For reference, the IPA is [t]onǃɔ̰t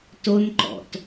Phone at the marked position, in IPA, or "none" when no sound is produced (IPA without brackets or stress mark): t